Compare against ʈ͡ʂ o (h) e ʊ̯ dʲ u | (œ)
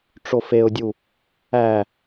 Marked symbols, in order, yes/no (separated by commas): no, no